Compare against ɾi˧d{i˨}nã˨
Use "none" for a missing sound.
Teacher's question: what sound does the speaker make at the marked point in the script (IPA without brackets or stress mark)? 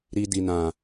i˨